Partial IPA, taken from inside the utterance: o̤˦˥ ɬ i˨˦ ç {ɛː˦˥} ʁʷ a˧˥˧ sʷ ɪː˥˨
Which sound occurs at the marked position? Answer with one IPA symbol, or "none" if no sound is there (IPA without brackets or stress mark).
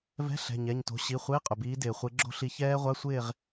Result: ɛː˦˥